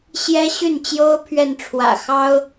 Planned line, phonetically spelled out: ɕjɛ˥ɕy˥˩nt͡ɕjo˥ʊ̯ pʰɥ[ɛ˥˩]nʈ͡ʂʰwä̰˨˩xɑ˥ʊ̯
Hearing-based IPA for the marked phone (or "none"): ɛ˥˩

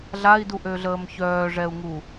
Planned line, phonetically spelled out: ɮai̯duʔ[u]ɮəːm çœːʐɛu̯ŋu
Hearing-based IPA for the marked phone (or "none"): ø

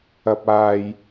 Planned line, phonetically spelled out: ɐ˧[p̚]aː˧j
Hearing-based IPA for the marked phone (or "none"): p̚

